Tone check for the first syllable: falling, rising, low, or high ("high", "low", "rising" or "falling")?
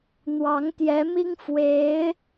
rising